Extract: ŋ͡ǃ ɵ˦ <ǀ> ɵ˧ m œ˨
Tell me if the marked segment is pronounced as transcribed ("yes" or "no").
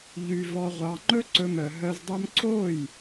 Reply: yes